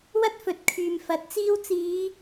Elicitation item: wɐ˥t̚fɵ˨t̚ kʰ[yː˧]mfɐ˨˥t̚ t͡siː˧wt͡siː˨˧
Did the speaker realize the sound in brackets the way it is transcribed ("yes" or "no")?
no